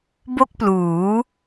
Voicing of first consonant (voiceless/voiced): voiced